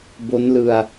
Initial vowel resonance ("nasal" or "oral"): oral